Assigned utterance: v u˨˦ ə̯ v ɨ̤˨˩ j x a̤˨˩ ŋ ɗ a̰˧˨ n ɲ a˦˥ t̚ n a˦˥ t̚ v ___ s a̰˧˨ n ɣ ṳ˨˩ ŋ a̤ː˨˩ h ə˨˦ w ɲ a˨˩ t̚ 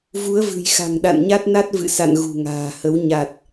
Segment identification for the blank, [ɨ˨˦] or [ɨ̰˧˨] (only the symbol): ɨ̰˧˨